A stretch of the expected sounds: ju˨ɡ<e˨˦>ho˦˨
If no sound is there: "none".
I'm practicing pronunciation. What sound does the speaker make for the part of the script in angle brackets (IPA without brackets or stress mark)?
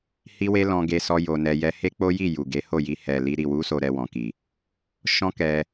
e˨˦